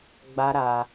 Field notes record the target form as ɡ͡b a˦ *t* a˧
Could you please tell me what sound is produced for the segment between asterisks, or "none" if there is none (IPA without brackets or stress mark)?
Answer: ɾ